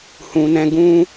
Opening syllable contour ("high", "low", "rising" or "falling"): low